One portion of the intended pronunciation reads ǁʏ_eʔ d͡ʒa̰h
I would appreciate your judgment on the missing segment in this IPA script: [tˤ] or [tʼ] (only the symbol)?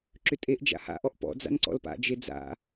tʼ